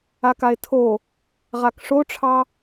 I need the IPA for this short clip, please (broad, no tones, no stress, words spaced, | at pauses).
akae̯tʰo | ʁakʂoʈ͡ʂʰɑ